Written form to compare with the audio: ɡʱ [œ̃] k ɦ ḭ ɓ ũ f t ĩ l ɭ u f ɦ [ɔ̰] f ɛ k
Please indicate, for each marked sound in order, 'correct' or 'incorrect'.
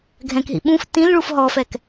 incorrect: ɛ̃, incorrect: ɔ

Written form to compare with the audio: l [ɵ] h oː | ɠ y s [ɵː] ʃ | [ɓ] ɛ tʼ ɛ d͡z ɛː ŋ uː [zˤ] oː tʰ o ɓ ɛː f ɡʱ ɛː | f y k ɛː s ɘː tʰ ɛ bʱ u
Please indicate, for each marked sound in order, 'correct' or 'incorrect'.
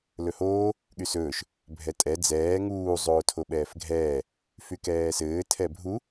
correct, correct, incorrect: bʱ, correct

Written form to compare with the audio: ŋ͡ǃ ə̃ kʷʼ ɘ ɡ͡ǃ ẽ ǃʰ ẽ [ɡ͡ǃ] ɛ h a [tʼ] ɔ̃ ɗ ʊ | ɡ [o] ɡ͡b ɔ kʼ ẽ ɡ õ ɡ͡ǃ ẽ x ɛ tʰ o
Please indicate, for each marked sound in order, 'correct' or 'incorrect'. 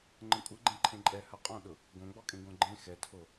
incorrect: ǃʼ, incorrect: qʼ, incorrect: õ

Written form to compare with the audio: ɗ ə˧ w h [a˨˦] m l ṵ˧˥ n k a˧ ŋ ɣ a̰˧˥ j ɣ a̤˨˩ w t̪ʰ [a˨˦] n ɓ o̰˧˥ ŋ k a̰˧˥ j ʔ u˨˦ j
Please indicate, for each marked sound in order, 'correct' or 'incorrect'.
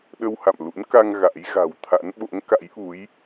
incorrect: a̰˧˨, incorrect: a̰˧˥

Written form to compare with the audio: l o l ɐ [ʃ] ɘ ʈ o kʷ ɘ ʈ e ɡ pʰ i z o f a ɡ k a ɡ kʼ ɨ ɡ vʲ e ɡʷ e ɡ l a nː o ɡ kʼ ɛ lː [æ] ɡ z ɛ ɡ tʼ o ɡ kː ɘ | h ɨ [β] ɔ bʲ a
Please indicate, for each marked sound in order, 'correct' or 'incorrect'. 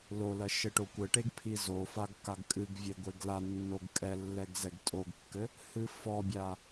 correct, incorrect: ɛ, incorrect: f

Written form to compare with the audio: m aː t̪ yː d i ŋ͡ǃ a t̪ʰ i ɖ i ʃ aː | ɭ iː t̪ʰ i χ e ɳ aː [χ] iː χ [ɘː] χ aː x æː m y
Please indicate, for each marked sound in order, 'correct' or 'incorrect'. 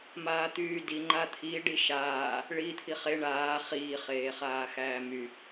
correct, incorrect: eː

